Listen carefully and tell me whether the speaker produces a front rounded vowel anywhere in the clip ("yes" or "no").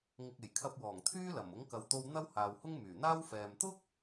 yes